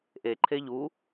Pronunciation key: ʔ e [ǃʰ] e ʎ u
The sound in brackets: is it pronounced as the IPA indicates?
yes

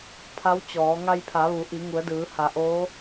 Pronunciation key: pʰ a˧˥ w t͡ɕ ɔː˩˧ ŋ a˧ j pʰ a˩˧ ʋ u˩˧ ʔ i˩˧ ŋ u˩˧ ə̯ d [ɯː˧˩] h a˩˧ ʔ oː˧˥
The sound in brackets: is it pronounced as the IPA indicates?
no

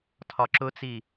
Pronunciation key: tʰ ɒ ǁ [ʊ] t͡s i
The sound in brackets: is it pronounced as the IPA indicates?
yes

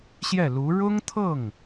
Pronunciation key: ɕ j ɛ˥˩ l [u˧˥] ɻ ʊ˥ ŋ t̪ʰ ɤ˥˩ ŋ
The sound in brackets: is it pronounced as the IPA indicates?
yes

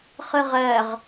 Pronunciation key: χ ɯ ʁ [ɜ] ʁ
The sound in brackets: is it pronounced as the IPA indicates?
yes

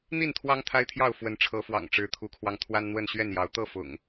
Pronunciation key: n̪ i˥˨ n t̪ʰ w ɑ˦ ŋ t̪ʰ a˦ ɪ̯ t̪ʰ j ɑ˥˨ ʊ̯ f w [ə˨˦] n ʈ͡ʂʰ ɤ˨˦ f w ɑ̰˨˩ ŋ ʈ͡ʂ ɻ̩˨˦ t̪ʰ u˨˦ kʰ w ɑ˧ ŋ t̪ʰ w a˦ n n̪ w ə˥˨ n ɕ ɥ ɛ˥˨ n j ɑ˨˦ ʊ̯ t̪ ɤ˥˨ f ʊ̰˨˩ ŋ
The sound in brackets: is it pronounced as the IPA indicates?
yes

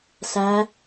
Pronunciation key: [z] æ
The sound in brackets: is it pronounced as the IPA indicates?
no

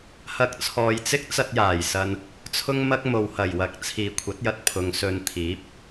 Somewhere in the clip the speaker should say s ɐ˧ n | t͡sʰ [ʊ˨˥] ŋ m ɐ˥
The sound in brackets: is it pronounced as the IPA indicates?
no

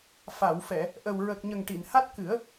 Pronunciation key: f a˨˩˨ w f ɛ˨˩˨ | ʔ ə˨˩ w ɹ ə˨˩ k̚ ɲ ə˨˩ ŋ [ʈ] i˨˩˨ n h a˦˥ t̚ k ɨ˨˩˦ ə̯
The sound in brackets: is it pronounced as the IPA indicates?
yes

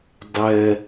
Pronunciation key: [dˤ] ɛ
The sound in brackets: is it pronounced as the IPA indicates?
yes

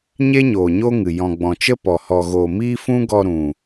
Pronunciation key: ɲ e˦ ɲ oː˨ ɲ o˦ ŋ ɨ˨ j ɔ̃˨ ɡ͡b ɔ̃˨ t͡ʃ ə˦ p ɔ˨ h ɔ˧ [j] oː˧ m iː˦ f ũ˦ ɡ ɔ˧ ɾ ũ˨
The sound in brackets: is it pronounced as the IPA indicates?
no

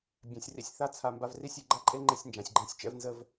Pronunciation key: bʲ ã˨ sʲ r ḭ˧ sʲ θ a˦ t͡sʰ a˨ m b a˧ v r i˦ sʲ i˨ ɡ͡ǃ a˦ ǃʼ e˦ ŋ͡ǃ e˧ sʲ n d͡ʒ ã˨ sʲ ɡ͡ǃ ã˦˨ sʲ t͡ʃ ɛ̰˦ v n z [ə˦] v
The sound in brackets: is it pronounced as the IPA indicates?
yes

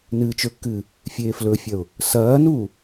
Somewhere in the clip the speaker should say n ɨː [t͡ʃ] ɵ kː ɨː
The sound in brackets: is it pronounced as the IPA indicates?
yes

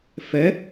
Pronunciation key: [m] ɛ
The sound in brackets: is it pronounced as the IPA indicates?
no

